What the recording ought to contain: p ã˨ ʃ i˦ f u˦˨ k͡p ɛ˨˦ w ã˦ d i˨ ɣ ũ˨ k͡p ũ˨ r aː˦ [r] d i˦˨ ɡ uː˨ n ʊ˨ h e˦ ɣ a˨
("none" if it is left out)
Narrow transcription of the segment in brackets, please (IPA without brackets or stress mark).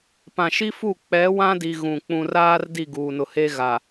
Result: r